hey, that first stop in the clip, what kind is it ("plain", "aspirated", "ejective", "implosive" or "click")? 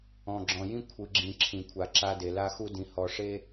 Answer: click